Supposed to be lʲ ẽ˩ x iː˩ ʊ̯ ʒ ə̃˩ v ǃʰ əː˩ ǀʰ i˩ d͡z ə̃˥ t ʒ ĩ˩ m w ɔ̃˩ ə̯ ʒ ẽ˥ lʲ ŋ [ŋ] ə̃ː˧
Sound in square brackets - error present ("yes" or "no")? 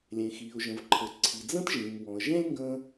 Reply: yes